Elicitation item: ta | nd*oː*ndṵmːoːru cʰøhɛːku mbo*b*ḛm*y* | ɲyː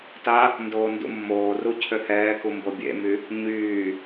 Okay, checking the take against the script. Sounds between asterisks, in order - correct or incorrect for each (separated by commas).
correct, incorrect, correct